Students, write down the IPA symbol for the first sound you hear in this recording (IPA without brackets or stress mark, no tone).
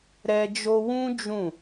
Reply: ɾ